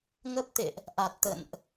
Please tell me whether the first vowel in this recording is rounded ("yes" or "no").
no